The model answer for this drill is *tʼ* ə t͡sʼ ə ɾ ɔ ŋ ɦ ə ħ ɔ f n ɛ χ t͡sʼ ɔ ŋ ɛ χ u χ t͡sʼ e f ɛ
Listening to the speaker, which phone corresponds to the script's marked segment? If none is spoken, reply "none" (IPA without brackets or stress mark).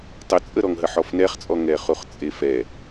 tˤ